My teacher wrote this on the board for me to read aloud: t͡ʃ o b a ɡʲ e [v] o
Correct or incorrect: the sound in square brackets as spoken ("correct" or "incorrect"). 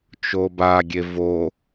correct